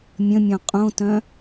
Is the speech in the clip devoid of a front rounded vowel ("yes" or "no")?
no